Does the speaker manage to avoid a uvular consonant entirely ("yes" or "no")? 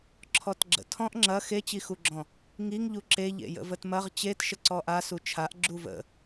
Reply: no